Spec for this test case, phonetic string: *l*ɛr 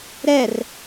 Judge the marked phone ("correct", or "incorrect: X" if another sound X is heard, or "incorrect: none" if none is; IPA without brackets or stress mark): incorrect: ɾ